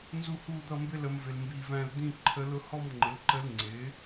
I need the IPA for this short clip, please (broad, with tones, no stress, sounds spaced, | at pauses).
n z u˥˧ h uː˥˧ d̪ ʌ˥˧ m b ɪ˥˧ l ə˧˥ m v ɪ˧ l m b iː˧ v æ̃˥˧ l d̪ ĩ˥˧ ǃʰ ə˧˥ l ʊ˥˧ h ɔ˥˧ m ŋ͡ǃ ɪ˩˥ l ǃ ə˧˥ l ŋ͡ǀ ɪː˩˥